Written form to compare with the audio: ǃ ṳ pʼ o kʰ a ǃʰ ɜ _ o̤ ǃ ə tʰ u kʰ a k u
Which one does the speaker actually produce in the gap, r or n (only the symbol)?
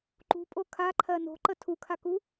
n